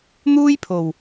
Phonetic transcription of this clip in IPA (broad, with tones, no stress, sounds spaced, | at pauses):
n̪ uː˥ j pʰ o˨˩ w